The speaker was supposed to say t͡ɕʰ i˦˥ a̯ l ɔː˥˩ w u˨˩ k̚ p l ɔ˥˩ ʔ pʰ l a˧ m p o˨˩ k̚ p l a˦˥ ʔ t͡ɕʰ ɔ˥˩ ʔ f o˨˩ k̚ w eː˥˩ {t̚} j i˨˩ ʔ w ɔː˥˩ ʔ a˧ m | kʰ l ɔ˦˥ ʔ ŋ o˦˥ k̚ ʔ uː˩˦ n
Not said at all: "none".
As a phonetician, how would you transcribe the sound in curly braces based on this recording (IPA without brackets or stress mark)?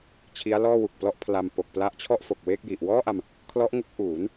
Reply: k̚